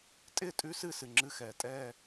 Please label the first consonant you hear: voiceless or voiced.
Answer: voiceless